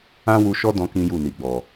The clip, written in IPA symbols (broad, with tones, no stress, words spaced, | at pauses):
ã˦wu˧ʃɔ˦dɔ̃˧ kĩ˦ju˦˨ni˨ɡ͡bɔ˨